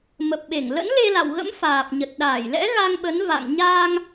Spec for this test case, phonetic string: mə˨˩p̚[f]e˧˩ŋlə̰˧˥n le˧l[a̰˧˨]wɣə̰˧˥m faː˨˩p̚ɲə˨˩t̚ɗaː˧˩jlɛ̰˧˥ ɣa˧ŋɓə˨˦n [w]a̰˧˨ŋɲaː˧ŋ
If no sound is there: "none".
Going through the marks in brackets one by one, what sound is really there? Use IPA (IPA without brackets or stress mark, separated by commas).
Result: ɓ, a̰˧˨, v